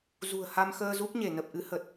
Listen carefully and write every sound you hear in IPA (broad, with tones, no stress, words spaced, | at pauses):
zṳ˨˩ə̯ha˧mxəː˧ zu˦˥k̚ɲe˧˩nə˨˩p̚ʔɨ˨˦ hə˨˩t̚